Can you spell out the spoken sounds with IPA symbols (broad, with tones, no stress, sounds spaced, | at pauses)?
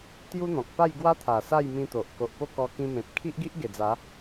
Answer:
t̪ j u˦ n̪ ɔ̃˨ k̚ p a˥˧ j ɡ w a˦ t̪ʰ a˨˩ s a˥˧ j m ĩ˧ t̪ o˨ ʔ k o˨ ʔ p o˥˧ k ɔ˧ k ĩ˧ m ẽ˨ p̚ kʰ i˦ ʔ ɡ i˦ ʔ ɡ e˨˩ d͡z a˨˦